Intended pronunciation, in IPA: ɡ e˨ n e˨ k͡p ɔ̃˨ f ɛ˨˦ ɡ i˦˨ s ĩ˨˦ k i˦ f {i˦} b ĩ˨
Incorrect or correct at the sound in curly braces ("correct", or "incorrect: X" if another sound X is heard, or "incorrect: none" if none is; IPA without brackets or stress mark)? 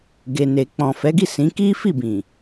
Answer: incorrect: i˦˨